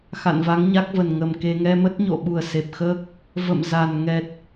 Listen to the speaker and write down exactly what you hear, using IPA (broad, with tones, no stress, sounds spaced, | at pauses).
x a̰˧˨ n v a˨˦ ŋ ɲ a˦˥ k̚ v ə˨˩ n ŋ ə˨˩ m k e˧ ŋ ɛ˧ m ə˦˥ t̚ ɲ o̰˧˨ ɓ u˨˩ ə̯ s e˨˩ p̚ x əː˦˥ k̚ | v ə̰˧˨ m z a˨˩ n ŋ ɛ˨˩ t̚